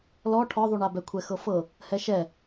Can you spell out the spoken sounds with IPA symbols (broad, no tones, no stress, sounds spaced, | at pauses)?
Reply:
l ɔ ʈʰ ɔ ðˤ u ɳ a b ɛ kʷʰ ɛ x ɤ f ɤ | h ɛ ʃ ɛ